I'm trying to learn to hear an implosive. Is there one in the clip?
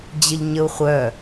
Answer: no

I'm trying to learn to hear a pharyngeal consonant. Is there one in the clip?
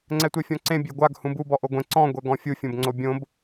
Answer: no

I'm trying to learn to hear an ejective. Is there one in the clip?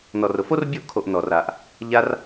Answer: no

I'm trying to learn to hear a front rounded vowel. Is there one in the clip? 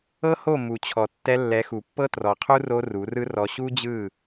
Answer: no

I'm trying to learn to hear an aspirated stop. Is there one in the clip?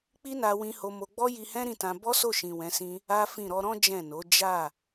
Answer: no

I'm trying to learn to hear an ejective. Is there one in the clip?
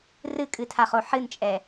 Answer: yes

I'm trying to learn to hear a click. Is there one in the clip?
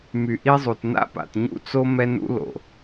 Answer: no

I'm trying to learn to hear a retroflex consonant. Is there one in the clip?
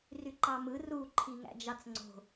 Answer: no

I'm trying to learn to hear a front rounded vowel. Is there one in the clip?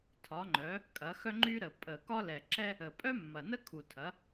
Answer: yes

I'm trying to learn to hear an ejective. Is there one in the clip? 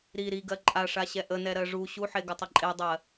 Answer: yes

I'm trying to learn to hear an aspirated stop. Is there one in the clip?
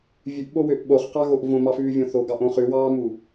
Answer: no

